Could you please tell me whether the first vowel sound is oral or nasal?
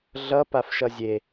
oral